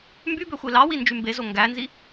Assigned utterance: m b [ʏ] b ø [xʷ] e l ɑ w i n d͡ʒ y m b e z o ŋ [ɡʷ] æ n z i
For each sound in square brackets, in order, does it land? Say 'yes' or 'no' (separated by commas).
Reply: no, yes, no